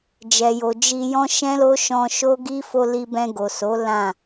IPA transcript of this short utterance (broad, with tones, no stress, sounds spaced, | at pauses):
d͡ʒ ɛ˨ j o˨ d͡ʒ i˧ j ɔ̃˦ ʃ ɛ̃˦ l o˦ ʃ ɔ̃˧ ʃ o˦ ɡ i˦ f o˧ l i˧ b ɛ̃˧ ɡ o˨ s o˨˦ l ã˦˨